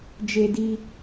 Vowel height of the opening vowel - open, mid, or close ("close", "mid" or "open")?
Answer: mid